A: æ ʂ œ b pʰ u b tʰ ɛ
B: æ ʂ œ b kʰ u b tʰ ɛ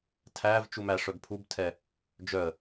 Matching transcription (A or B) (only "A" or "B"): A